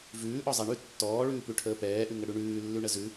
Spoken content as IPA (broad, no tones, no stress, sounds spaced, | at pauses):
v ʉː ʔ ɔ zˤ ɛ ɳ ʉ tː ɔː ɭ ʉː p ʉ ʈʰ əː p ɛː ʔ ʉ ŋ ə ɽ ʉ ɳ ʉː lː ʉ ɳ ə z ʉ